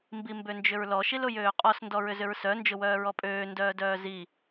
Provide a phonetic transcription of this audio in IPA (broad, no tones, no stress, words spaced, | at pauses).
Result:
mbimbønd͡ʒʏɹlɔ ʃilʊjøːqʼɔs ndɔɹʏzʏɹsœ nd͡ʒʊwœːɹɔpʼøː ndœːdœːzi